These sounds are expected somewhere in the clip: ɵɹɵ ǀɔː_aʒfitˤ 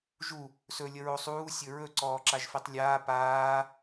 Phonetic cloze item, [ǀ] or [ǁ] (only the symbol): ǁ